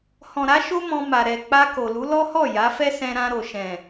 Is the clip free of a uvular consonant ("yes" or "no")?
yes